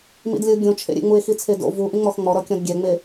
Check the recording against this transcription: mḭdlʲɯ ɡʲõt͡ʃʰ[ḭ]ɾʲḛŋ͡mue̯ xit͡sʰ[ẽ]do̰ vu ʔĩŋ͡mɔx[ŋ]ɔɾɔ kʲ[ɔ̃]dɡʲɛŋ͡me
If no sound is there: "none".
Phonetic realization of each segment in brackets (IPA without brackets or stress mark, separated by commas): ḛ, e, ŋ͡m, ɔ̃